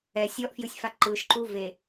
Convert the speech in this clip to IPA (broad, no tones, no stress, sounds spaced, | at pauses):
ɛ sʲ ɔ ʔ f j ɯ sʲ f a ǃ ɯ ʃ ǃ u v e